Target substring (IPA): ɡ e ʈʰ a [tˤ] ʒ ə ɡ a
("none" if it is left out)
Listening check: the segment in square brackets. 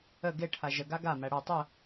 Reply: none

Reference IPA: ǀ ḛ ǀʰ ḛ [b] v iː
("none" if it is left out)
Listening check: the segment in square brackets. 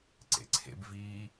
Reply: b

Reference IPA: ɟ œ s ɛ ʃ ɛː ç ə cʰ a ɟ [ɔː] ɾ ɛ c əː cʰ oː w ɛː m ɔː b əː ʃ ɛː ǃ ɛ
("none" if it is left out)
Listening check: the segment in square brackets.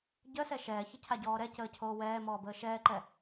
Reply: ɔː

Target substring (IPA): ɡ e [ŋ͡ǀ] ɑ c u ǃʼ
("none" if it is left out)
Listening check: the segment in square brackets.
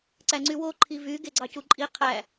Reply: ɡ͡ǀ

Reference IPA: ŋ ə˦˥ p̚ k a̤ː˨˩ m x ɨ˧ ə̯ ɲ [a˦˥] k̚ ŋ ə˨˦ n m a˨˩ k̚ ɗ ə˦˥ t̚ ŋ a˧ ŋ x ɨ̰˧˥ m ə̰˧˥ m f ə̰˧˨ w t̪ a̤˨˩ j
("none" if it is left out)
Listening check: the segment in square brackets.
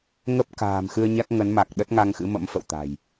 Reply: a˦˥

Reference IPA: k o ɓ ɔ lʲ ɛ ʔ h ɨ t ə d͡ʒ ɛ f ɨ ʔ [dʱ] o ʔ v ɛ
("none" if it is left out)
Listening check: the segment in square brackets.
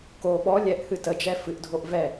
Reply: dʱ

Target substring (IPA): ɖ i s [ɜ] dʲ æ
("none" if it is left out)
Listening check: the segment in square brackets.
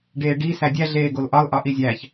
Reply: æ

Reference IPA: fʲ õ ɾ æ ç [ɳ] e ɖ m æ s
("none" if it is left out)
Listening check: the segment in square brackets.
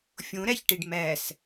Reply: ʈ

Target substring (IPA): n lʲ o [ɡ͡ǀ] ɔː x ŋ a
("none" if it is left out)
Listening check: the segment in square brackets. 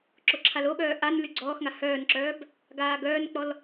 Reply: ɡ͡ǀ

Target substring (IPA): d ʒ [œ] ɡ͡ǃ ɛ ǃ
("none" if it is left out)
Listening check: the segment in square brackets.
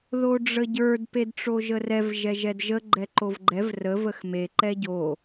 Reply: ə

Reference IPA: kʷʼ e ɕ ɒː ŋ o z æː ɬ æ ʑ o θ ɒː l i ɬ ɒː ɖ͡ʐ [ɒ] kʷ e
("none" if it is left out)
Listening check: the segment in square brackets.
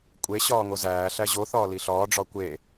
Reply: ɒ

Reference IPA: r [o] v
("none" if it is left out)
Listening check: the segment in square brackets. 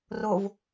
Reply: o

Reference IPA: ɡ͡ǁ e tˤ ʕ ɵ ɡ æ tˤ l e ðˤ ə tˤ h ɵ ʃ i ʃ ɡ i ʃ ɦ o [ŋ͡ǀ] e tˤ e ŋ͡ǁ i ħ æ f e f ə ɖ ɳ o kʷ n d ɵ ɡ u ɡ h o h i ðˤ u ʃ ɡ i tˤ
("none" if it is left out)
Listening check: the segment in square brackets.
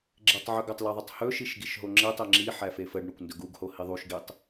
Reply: ŋ͡ǁ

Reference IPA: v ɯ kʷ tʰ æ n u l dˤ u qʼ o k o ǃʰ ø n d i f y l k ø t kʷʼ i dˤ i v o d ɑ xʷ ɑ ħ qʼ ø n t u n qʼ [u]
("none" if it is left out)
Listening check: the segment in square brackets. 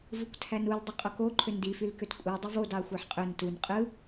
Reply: ɯ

